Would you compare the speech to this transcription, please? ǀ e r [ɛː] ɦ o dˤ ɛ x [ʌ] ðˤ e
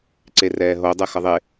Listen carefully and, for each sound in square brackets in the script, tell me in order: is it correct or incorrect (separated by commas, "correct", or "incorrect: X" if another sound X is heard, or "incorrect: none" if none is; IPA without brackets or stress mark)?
correct, correct